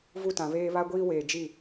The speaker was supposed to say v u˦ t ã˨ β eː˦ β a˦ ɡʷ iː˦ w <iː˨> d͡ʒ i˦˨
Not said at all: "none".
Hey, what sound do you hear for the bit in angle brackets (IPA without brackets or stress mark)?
eː˨